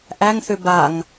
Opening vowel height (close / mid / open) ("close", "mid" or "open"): open